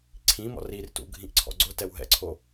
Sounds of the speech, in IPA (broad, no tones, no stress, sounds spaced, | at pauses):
ǀʰ ĩ m ɔ̰ r i r t ṵ ɡʱ ĩ ʔ ǀʰ ɔ̰ ɡ͡ǀ ʊ t ɛ w ɦ ɛ̰ ǀʰ o